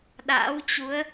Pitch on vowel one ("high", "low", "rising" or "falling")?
rising